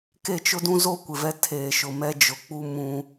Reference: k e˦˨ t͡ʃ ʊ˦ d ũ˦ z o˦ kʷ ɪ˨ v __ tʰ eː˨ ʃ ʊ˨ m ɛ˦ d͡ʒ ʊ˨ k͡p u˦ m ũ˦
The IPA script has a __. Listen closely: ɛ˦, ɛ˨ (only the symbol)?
ɛ˦